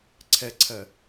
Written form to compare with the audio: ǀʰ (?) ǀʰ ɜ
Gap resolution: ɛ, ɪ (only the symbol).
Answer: ɛ